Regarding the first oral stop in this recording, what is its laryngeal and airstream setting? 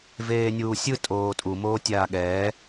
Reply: ejective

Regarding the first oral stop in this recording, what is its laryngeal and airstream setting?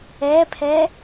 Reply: aspirated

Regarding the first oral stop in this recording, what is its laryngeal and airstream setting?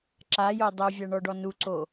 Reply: click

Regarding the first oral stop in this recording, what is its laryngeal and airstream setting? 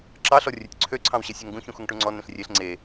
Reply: click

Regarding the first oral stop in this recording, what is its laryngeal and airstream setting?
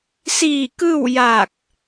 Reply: plain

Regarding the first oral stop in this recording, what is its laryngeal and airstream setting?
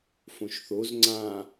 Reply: click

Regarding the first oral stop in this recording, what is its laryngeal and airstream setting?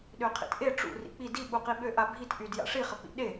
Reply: implosive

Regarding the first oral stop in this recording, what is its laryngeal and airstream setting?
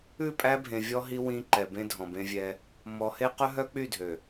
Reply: ejective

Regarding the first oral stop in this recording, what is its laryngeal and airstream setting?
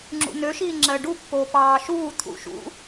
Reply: click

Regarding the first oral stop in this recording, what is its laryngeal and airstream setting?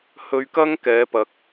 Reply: plain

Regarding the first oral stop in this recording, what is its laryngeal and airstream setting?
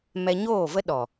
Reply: implosive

